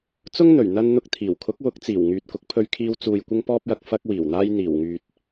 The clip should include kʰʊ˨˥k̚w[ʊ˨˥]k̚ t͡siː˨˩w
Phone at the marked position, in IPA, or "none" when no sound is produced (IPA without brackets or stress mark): ʊ˨˥